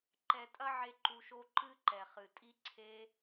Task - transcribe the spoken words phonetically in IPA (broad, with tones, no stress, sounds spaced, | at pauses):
ǃ ɛ˧ tʼ ɐ˦ ʕ e˦ ǃ u˧ ʃ o˦ ǃ ɨ˦ ǃ ɛ˨ χ ɨ˨ tʼ i˦ ǀʰ e˦